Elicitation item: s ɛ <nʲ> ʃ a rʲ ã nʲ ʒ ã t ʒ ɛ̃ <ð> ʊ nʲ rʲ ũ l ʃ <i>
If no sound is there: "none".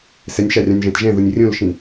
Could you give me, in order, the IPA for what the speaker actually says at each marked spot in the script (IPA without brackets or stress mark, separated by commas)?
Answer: nʲ, ð, ĩ